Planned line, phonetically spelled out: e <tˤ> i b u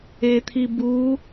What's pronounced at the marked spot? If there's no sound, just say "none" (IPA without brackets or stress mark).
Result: t̪ʰ